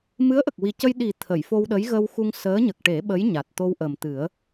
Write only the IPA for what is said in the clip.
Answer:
m ɨ˧˥ ə̯ ʔ ə˨˩ k̚ w i˨˩ c ə˧ j ɗ i˨˩ t̪ʰ ə˨˩˨ j f o˧ w ɗ ə˧˥ j ɣ ə˧ w x u˧ ŋ s əː˧˥ ɲ ə˨˩ k̚ ʈ e˨˩˦ ɓ ə˧˥ j ɲ a˨˩ t̚ t̪ o˧ w ʔ ə˨˩ m t̪ ɨ˨˩˦ ə̯

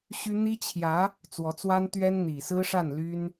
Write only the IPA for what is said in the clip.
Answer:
ɕ y˥ n̪ i˥ t͡ɕʰ j ä˧˥ | t͡s w ɔ˧˥ t͡s w a˥ n t̪ ɥ ɛ˥ n n̪ i˨˩ s ɹ̩˥ ʂ a˥˩ n l y˥ n

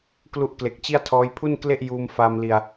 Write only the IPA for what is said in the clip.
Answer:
k l u˦˥ ʔ k l e˨˩ k̚ t͡ɕ i˥˩ a̯ tʰ ɔː˦˥ j pʰ u˥˩ n k l e˥˩ ʔ j uː˧ m f aː˧ m l i˧ a̯

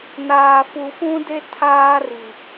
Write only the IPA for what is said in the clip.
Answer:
n aː˨ f u˨ f ũ˦ d e˦ tʰ aː˦ r i˨

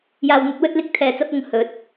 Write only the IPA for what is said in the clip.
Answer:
j aː˨ w n̪ ɵ˧ t̚ w ɵ˧ t̚ l ɪ˧ k̚ t̪ʰ ɛː˨ t͡s ɐ˧ p̚ ʊ˨ ŋ h ɵ˨˥ t̚

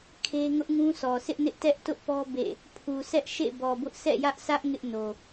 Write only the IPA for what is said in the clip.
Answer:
kʰ e˦ ŋ ʊ˦ ʔ ŋ ũ˦ sʰ ɔ˨ s ɪ˦ ʔ n ɪ˦ ʔ t ɛ˦ ʔ t ʊ˦ ʔ p ɔ˦ b ḛ˦˨ | pʰ u˨ sʰ ɛ˦ ʔ ʃ ḛ˦˨ b ɔ˨ b ʊ˦ ʔ sʰ ɛ̰˦˨ j ä˦ ʔ sʰ ä˦ ʔ ŋ ɪ˦ ʔ n o˨

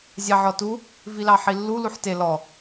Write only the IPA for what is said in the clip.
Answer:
zʲ ɑ ʕ ɔ t u | v i l ɑ ħ i lː u l u ħ t e l ɔ

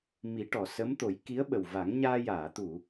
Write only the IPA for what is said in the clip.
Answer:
m i˨˩˦ ʈ ɔ˨˩˨ s ə˧˥ m t̪ o˨˩˦ j k i˧˥ ə̯ ɓ ə˨˩ w v a˨˩˦ ŋ ɲ aː˧ j aː˨˩˨ t̪ u˨˩˨

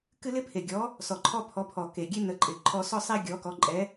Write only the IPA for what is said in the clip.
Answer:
k ɨ˦ l ɪ˦ pʰ e˨˩ ɡʲ ɔ˨˦ | s ɔ˨˩ ǃʰ ɔ˦ pʰ ɔ˨˦ pʰ ɔ˨˩ k e˨˩ ɡʲ e˦ n ə˨˦ ǃʼ ɪ˨˩ ǃʰ ɔ˦ s ɔ˦ sˤ e˦ ɡʲ ɔ˨˦ k ɔ˨˦ ǃʼ ɛ˨˦

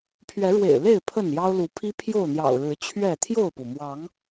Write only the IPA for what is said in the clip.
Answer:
pʰ ɥ ɛ˨˦ ɻ w ḛ˨˩ ɪ̯ l e˥˨ ɪ̯ pʰ ə˥˨ n j ɑ˦ ʊ̯ l u˨˦ pʰ i˦ pʰ j o˥˨ ʊ̯ n̪ j ɑ̰˨˩ ʊ̯ ɻ ɻ̩˨˦ t͡ɕʰ ɥ ɛ˥˨ t̪ʰ j o˥˨ ʊ̯ p u˩ m w ɑ˨˦ ŋ

